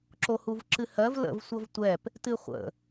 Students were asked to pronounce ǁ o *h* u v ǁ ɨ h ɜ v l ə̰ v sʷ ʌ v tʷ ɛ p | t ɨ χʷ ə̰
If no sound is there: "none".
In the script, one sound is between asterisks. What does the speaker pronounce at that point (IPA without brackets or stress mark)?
h